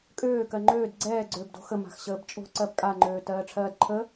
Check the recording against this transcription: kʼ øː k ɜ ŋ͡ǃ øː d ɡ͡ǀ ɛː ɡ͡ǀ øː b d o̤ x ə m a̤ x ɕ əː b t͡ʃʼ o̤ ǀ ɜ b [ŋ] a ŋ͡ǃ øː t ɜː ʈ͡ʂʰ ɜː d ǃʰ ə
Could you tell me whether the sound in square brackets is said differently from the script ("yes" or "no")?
yes